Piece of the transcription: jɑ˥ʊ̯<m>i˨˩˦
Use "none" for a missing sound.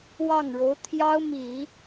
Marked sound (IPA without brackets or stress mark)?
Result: m